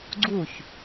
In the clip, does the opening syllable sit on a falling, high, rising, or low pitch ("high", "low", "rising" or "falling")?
falling